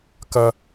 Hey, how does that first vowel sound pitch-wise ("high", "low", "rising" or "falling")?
low